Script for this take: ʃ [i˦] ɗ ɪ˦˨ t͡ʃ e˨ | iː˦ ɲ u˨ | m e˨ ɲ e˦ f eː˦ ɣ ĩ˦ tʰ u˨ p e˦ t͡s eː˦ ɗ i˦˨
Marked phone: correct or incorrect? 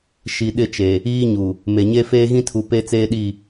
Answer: incorrect